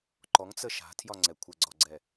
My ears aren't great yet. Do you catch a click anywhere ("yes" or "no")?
yes